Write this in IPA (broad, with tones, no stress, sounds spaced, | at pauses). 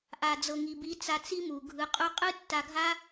ʔ a˨ d͡z ɤ˨ ŋ i˨ b i˨˦ t͡s a˧ t͡s i˦ m u˨ ɡʱ ɯ˧ qʼ u˦ qʼ ɯ˦ tː a˧ ɡʱ a˦